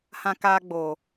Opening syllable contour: high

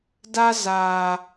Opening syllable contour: high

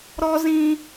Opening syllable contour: high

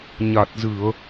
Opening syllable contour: low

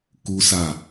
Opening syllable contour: high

